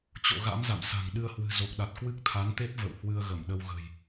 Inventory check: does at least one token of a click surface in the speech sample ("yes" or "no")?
no